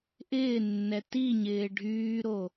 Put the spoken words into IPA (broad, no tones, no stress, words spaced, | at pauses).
ʔɪːnːɛ tiɲɪː ɖʱyːɾo